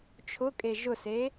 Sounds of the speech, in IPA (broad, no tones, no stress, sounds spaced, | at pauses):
t͡ʃʰ ʊ kʼ e ʒ ʊ s e